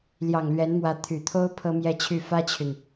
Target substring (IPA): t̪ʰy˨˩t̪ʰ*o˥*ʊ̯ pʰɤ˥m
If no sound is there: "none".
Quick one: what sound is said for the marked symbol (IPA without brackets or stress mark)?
o˥